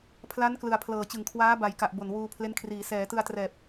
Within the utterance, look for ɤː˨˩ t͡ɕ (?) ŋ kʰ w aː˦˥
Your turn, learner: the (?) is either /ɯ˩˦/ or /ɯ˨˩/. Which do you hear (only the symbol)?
ɯ˨˩